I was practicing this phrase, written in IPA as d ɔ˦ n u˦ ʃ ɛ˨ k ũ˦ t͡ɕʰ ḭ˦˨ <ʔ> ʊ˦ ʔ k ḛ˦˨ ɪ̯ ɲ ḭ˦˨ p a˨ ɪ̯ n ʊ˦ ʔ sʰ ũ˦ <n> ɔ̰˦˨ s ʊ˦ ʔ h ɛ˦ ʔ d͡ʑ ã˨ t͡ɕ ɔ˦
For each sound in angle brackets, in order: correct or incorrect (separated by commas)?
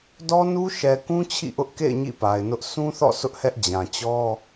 correct, incorrect